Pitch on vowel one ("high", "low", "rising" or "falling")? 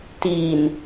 low